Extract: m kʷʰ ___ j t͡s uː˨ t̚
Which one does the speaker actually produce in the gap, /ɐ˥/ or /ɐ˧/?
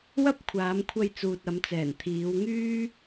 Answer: ɐ˧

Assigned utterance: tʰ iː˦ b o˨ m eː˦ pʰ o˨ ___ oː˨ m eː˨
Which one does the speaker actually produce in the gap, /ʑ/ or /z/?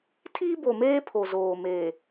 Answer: z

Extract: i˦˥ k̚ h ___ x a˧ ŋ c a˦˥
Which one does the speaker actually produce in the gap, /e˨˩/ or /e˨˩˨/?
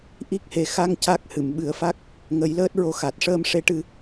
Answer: e˨˩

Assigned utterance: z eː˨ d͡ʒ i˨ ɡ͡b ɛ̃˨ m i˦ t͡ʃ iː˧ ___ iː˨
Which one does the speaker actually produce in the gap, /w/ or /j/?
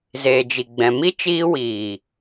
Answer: w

